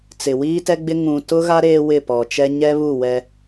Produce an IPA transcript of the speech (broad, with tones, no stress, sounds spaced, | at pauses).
t͡s ɪ˨ w iː˦ t ɛ˦ ɡ͡b ɪ˦ ŋ ũ˨ t ʊ˦ ɣ a˦ ɾ eː˦ w ɪ˦˨ p ɔ˨ t͡ʃ ɛ˦ ɲ ɛ˦ β u˦˨ w ɛ˦